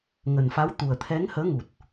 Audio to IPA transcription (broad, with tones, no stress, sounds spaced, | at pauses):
ŋ ə˨˩ n f a˨˦ w t̪ u˨˩ ə̯ t̪ʰ ɛ˨˦ ŋ h əː˨˦ ŋ u˨˩ t̚